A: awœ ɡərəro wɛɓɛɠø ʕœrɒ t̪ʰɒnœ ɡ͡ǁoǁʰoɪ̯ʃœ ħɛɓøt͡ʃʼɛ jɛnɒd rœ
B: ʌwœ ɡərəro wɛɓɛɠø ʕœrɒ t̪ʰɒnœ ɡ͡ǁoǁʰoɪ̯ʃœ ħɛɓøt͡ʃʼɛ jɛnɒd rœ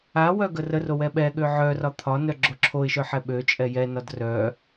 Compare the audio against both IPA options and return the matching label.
A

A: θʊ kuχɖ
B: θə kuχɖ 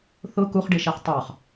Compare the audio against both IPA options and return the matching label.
A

